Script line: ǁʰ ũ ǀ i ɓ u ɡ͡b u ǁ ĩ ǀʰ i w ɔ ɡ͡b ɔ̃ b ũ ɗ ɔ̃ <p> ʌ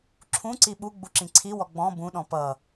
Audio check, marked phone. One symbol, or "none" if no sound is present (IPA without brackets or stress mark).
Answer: p